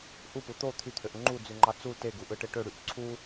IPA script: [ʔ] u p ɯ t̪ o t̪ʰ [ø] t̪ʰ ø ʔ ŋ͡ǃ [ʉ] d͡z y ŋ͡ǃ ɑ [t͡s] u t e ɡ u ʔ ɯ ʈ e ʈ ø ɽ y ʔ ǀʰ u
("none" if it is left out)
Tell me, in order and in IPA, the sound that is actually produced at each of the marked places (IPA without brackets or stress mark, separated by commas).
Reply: ʔ, y, u, t͡s